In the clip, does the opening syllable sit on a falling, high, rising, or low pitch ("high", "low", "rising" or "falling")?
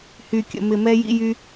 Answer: low